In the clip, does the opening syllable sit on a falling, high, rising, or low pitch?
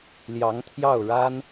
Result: rising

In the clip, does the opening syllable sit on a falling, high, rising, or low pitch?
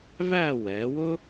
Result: falling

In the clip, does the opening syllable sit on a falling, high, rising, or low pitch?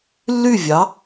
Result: falling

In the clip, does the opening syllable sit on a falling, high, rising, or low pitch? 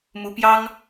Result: rising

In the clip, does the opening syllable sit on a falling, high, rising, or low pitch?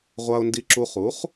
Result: low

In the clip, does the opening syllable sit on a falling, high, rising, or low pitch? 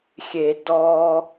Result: low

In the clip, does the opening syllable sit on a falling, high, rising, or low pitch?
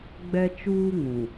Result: high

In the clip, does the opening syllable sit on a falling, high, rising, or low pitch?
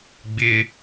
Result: high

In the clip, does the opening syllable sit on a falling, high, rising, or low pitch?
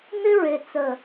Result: high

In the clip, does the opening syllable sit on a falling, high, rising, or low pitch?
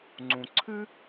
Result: low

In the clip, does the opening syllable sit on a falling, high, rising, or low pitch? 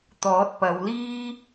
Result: rising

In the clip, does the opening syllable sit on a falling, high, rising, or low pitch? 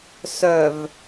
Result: low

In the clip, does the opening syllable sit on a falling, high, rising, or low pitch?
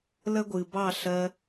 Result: high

